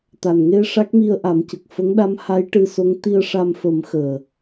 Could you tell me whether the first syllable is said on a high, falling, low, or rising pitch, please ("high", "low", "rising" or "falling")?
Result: low